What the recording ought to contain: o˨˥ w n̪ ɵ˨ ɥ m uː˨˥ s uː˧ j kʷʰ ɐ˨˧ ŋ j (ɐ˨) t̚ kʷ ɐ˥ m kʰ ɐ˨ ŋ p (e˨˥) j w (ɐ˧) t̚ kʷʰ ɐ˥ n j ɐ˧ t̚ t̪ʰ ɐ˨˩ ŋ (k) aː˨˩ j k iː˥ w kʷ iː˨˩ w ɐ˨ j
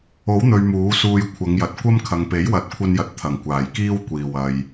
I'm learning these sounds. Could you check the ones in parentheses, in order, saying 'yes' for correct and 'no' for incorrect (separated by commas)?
yes, yes, no, no